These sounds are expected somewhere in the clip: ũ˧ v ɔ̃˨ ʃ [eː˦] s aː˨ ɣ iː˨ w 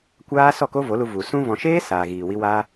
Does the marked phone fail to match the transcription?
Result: no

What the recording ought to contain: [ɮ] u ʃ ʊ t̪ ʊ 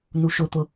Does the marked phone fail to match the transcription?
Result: yes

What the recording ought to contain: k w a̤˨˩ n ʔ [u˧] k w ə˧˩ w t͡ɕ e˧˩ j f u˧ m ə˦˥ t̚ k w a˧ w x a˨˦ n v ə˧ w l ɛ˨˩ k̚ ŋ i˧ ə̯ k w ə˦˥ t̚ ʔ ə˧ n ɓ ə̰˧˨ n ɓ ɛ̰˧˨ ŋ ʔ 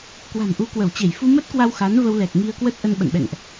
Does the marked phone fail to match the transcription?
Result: yes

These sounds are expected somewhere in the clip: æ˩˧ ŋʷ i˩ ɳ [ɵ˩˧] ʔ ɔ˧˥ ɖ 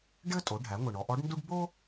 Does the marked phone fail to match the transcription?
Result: yes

